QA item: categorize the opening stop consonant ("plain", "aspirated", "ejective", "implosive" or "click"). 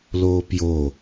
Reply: plain